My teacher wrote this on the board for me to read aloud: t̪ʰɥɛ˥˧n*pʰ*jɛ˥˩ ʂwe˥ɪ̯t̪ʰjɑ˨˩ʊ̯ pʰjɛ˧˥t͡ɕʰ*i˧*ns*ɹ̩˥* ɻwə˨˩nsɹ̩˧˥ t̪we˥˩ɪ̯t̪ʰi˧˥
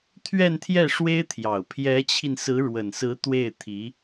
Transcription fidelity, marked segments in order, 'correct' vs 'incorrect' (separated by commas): incorrect, correct, incorrect